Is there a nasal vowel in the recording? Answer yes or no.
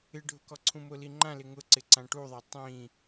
yes